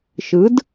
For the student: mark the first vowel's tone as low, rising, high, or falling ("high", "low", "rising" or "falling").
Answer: rising